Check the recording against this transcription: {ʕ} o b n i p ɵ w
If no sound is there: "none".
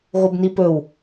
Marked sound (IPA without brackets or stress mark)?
ɣ